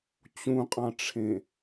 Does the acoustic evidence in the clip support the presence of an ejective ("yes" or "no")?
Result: yes